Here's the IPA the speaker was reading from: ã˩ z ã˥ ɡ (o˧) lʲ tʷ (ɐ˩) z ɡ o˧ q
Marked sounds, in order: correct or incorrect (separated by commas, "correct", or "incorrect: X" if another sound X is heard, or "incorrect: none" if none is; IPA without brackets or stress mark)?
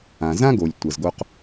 incorrect: o˩, correct